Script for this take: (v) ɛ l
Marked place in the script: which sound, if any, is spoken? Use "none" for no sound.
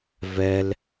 v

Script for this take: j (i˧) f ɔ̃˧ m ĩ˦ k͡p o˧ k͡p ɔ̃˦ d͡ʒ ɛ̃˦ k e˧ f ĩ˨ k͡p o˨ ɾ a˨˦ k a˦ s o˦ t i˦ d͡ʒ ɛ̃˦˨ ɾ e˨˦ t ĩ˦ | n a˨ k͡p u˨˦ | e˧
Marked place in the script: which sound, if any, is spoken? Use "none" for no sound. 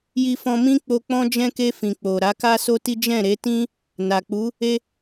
i˧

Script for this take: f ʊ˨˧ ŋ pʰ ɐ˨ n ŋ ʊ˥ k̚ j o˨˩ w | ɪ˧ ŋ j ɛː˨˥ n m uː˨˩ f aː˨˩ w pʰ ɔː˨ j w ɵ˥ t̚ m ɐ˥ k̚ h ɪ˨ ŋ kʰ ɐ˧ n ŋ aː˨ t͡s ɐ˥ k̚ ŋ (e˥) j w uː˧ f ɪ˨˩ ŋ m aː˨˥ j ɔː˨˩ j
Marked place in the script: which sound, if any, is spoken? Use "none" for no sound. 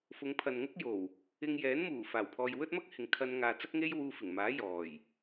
e˥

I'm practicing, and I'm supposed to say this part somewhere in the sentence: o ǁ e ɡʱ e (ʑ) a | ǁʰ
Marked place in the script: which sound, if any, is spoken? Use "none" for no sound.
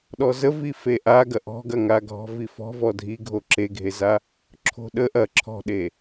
z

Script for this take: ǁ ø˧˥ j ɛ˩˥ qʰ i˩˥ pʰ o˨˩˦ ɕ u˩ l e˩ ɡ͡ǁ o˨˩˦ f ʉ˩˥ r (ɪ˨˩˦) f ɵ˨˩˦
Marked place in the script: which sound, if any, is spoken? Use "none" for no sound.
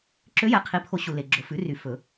y˨˩˦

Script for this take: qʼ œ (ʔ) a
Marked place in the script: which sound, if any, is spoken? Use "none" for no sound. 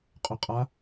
qʼ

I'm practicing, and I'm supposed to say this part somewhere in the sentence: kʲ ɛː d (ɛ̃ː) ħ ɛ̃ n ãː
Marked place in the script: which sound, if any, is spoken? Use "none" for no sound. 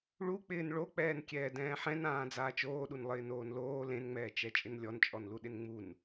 ɛ̃ː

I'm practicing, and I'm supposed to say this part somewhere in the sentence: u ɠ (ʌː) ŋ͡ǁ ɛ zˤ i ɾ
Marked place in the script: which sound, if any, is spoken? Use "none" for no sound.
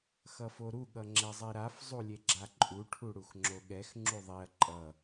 ʌ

